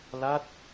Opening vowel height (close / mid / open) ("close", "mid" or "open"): open